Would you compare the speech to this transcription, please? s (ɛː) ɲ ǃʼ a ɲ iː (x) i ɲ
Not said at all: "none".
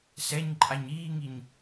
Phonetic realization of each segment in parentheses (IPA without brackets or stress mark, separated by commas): ɛ, ŋ